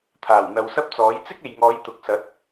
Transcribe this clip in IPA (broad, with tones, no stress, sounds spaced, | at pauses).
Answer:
t̪ʰ aː˨˩ w n̪ ɐ˨ w s ɐ˥ p̚ t͡s ɔː˨˥ j t͡s ɪ˥ k̚ e˨ j ŋ ɔː˨˧ j t̪ ʊ˨˥ k̚ s ɐ˨˥ t̚